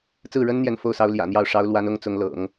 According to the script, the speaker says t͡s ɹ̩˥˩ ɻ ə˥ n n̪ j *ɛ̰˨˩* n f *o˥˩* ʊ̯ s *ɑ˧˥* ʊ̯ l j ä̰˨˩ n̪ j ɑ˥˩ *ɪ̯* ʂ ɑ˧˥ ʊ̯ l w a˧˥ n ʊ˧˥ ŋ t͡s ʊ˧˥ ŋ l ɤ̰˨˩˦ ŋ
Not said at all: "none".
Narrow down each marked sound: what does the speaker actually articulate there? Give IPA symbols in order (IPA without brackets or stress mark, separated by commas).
ɛ˥˩, o˥, ɑ˧˥, ʊ̯